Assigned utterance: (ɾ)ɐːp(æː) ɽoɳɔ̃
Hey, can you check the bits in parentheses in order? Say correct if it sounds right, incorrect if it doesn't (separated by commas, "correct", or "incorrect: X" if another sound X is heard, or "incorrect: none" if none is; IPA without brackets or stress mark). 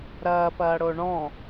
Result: correct, incorrect: ɐː